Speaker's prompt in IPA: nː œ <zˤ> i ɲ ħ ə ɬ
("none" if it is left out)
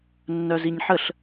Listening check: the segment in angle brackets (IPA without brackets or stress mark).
z